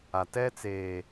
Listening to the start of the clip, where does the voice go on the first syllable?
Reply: low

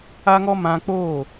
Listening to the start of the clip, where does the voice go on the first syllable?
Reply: high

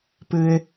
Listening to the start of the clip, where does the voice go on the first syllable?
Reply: low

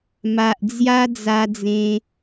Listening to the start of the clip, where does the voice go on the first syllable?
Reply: low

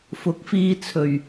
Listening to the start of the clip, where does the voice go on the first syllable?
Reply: rising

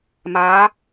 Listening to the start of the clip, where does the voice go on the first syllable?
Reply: rising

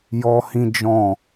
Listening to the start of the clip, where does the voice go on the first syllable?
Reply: high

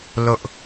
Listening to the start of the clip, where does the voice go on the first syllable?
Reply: high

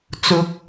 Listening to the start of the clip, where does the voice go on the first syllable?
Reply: rising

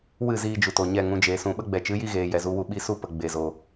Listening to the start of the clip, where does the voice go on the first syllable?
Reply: falling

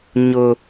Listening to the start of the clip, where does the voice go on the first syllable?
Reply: high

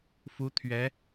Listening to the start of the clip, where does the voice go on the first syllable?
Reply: rising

